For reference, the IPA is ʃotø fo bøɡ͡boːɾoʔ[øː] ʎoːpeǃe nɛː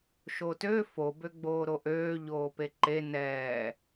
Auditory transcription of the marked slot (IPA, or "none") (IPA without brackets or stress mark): øː